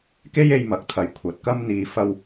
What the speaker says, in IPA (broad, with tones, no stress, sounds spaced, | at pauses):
k e˥ j e˧ j m ɐ˨˥ k̚ t̪ʰ ɐ˨˧ j kʷʰ ɐ˨˥ t̚ k ɐ˥ m n̪ iː˨ f ɐ˧ w